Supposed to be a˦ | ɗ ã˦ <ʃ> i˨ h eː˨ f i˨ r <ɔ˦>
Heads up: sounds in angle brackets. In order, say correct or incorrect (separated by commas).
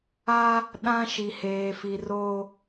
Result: correct, incorrect